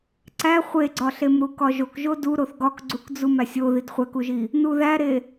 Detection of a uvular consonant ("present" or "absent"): present